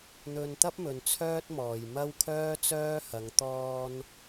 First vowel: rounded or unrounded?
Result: rounded